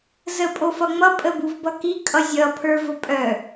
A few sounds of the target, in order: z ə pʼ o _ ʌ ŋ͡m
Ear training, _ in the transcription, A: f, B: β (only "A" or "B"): A